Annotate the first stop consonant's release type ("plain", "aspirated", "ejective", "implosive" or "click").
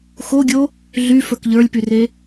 plain